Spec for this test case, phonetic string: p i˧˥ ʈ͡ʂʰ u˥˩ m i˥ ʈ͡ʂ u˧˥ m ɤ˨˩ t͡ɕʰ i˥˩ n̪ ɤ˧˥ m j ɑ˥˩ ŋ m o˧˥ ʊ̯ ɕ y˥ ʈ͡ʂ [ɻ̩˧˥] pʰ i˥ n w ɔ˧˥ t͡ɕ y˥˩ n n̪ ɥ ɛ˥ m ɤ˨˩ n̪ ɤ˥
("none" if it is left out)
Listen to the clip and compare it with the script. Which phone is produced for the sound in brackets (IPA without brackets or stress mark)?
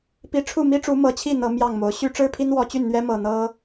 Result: ɻ̩˥